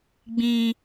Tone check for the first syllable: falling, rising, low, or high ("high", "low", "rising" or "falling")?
high